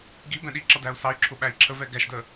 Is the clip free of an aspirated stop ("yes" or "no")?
no